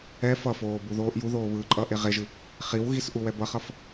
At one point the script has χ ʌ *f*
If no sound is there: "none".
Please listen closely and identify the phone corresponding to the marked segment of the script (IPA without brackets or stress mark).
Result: f